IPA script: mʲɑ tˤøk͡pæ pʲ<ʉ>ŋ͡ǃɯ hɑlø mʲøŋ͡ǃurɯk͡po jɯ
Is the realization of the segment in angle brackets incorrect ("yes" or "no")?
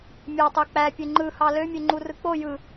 yes